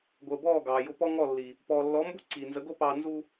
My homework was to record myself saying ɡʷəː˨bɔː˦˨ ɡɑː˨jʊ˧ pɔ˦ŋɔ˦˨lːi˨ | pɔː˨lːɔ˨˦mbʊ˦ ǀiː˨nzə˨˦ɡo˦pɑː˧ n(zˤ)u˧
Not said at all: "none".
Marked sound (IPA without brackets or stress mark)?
z